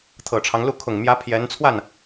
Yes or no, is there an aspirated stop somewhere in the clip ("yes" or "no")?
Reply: yes